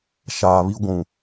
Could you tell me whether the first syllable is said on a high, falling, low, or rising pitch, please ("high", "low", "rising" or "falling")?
low